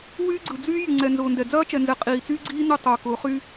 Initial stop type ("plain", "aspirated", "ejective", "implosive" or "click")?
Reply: click